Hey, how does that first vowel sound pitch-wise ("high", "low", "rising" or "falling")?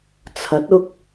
rising